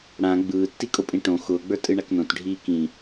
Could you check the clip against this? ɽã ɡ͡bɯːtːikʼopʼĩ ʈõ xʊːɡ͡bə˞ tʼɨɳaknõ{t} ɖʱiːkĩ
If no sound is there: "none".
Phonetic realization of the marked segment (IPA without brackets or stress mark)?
t